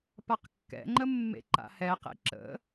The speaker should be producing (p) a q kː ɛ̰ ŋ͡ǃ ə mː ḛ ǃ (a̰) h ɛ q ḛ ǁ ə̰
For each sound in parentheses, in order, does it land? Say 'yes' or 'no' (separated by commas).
yes, yes